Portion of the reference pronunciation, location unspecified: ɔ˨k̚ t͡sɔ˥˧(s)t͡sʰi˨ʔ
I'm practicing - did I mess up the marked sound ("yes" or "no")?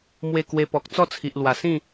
yes